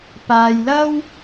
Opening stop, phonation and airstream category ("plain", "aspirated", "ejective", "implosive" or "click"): plain